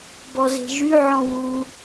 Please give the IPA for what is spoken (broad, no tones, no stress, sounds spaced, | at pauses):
b ɔ z e̤ ʒ y ʕ ɔ̃ w u